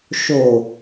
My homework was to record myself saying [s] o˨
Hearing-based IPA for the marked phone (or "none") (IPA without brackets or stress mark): ʃ